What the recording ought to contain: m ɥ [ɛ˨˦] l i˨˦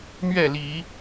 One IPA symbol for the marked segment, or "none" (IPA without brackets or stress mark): ɛ˥˨